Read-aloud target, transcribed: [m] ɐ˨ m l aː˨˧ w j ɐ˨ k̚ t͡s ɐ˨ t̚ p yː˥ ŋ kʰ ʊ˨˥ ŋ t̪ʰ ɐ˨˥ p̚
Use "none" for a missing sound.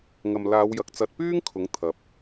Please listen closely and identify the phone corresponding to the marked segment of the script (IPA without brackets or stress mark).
ŋ